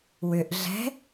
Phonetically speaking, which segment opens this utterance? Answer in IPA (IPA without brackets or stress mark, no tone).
w